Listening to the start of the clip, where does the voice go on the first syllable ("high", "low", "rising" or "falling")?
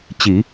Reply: low